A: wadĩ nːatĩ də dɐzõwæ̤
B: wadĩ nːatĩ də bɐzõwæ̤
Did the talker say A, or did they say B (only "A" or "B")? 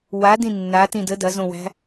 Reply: A